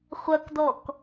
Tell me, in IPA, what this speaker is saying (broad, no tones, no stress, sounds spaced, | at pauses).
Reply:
χʷ ɐ k d ɔ k